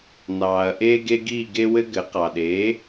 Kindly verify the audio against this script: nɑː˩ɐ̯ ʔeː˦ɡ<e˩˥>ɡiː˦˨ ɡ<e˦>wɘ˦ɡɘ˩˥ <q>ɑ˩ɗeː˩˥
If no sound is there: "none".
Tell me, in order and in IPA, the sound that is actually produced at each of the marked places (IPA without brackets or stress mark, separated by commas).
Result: e˦, e˦, q